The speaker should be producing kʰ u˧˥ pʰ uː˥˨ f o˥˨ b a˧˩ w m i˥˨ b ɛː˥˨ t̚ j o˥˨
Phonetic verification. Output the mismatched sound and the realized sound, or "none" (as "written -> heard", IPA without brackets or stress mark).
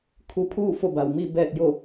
none